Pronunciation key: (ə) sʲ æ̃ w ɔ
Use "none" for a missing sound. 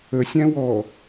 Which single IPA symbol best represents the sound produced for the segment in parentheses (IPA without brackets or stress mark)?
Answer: ə